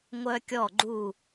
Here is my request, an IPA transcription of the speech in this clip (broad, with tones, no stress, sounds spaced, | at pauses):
ŋʷ œ˦ kʲ ɔ˦˨ ɡ͡ǃ u˦˨